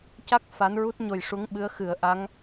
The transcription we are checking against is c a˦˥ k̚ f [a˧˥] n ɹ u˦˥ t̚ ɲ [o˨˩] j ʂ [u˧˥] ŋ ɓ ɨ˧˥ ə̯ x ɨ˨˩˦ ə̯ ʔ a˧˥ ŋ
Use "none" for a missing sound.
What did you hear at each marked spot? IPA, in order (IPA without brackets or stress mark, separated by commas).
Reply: a˧˥, o˨˩, u˧˥